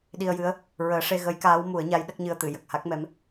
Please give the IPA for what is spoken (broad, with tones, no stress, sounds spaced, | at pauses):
ɗ i˧ ə̯ j ɨ˧˥ ə̯ | ɹ əː˨˩˦ ʂ e˧ ɣ ə˧˥ j k aː˧˥ w m u˨˩˦ ə̯ ɲ a˧˥ j ɗ ə˦˥ k̚ ɲ ɨ˧ ə̯ t̪ ɨ˨˩˨ j ə˨˩ k̚ h a˦˥ k̚ m ɛ˧˥ m